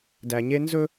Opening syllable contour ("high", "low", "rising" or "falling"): low